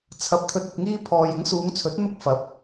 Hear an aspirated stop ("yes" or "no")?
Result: yes